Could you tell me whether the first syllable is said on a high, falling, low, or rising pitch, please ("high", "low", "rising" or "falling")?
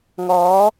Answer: rising